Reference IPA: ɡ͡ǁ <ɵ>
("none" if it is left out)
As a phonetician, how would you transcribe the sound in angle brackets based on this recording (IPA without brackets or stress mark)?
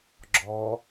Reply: ɔ